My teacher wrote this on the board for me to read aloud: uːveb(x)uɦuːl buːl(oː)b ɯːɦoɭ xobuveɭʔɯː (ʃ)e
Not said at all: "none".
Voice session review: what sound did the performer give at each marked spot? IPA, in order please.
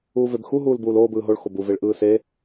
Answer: x, oː, s

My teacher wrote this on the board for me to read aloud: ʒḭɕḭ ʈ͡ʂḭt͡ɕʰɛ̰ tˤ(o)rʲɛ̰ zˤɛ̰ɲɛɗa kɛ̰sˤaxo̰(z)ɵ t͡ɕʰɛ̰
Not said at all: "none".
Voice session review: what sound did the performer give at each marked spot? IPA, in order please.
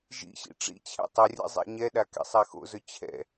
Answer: ɵ, z

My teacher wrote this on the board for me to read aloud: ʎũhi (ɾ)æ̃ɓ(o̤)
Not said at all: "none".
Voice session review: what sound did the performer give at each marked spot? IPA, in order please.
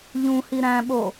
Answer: ɾ, o

